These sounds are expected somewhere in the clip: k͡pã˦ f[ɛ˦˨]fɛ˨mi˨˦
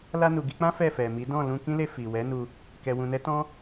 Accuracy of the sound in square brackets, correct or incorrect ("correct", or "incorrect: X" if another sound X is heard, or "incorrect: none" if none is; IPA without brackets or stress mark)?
correct